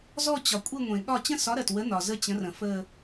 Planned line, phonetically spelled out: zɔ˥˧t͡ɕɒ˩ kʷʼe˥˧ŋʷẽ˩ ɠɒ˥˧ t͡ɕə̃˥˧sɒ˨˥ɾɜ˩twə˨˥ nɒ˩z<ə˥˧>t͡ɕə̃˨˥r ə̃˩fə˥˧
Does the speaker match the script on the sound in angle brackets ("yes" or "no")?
yes